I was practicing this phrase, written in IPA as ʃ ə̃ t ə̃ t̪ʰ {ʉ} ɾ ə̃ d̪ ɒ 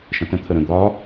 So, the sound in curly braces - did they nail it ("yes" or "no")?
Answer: no